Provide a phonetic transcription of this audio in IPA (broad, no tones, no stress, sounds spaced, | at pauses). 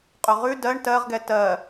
qʼ ɵ ʁ ʉ d ɜ ɳ t ɜ ʁ ɡ ɛ t ɜ